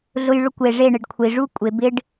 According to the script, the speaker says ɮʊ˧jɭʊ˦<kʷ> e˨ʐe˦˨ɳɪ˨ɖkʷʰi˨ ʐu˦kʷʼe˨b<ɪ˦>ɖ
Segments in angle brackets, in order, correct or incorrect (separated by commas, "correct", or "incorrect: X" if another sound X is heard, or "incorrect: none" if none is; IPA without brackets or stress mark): correct, correct